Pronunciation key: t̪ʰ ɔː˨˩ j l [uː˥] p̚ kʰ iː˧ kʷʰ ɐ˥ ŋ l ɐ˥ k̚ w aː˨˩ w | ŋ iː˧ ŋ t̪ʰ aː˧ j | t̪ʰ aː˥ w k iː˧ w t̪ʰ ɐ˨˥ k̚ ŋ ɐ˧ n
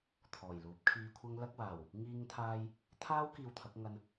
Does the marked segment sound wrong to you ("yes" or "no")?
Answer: yes